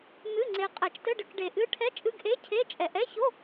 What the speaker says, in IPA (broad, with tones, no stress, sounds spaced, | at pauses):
n̪ ɨ˧˥˧ ŋ͡ǀ e˧ qʼ ɛ˧˩˧ t͡ʃ t ɘ˧˥˧ ɖ ɘ˧ k ɖ e˧ ʔ ɨ˧˥˧ ʈʰ ɛ˧˥˧ t͡ʃʼ ɨ˧˥˧ ɡ ʔ e˧˥˧ cʰ e˧˥˧ t͡ʃʼ ɛ˧˩˧ ʔ ɛ˧˥˧ ç o˧˥˧